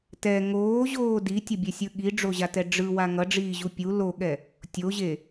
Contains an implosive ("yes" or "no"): yes